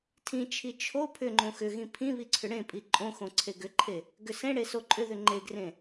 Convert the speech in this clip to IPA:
tʰ ĩ t͡ʃʰ i t͡ʃʰ o pʰ ʏ ŋ͡ǃ õ x ʏ ɣ ĩ pʰ ĩ β i ǀʰ ʏ ɽ ẽ pʼ i ǃʼ õ x õ ǀʰ e ɡ ʏ ǃʰ e | ɡ ʏ s ẽ ɽ e s o ǃʼ ʏ ð ʏ ŋ͡ǃ e ɡ r ẽ

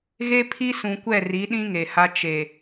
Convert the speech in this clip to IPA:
ɣ e˦ pʰ i˦ s ũ˨ kʷ ɛ˦˨ r i˨˦ ɗ ĩ˦ ŋ e˨ h a˦ t͡ʃ e˨

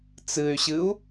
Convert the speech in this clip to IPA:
t͡s ɨ y̯ ɕ ɨ u̯

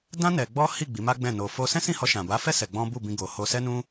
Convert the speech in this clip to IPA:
d ã˦ n ɛ˧ ɡ͡b ɔ˦ h i˦˨ ɡ͡b i˨˦ m a˦ ɡ͡b ɛ̃˦˨ n o˧ f o˧ s ɛ̃˦ s ĩ˦˨ h ɔ˧ ʃ ã˨ b a˨˦ f ɛ˦ s ɛ˧ ɡ͡b ɔ̃˦ b u˦˨ b ĩ˧ ɡ o˨ h o˧ s ɛ˦ n ũ˦

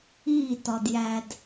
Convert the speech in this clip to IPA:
iː˥˨ t ɒ˧ d j æ˧ d

